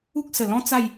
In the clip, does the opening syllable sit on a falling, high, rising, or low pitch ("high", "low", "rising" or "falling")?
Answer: high